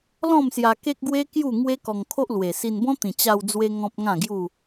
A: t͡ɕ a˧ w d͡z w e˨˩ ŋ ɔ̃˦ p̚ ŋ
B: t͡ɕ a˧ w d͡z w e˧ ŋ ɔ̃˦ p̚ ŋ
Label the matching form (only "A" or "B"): B